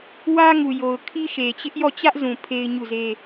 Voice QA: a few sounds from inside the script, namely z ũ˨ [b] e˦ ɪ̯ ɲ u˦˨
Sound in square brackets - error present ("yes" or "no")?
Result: yes